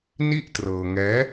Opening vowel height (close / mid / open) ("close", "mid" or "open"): close